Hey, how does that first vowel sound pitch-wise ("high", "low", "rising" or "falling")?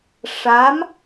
rising